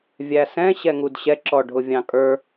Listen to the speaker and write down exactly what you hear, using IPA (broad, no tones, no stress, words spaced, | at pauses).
vʲæsɛ̃ ɕɛŋudɕɛ ǁɔɖʱʊvʲɑ̃kʼə˞